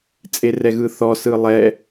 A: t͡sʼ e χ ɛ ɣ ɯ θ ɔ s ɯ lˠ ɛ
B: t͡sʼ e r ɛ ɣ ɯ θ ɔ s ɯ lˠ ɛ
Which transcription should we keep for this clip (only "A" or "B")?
B